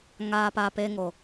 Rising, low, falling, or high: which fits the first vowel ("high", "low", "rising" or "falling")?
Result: low